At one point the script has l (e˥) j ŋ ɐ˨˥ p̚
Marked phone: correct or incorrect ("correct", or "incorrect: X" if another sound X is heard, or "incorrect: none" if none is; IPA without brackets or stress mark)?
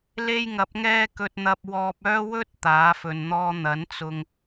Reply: correct